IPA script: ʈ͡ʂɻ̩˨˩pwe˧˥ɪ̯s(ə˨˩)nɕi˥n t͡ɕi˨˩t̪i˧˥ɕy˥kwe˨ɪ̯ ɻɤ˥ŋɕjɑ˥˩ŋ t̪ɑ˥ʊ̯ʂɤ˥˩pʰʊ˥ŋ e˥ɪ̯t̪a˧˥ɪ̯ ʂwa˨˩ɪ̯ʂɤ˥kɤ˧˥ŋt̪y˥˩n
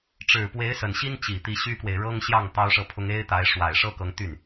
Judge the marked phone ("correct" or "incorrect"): correct